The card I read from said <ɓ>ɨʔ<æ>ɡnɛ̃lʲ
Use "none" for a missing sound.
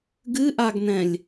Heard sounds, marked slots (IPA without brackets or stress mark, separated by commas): ɡ, a